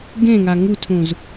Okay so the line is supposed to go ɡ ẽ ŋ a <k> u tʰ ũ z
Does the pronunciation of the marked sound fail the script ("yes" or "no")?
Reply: yes